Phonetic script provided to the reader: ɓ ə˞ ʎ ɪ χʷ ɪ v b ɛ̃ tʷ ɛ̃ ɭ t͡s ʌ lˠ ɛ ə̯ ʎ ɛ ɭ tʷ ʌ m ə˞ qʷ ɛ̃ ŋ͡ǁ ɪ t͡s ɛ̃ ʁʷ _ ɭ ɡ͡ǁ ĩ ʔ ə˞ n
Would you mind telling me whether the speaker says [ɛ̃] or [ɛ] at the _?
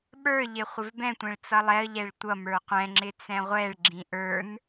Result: ɛ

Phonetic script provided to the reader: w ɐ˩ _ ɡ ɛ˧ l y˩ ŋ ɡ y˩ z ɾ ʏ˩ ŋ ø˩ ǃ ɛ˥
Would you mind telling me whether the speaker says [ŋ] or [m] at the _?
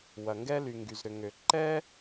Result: ŋ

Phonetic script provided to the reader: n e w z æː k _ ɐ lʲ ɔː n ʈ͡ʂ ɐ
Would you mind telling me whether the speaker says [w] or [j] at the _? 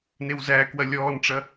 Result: w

